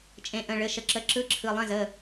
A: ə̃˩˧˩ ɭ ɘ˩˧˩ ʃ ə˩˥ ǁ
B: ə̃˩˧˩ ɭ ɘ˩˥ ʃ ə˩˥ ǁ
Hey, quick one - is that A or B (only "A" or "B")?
A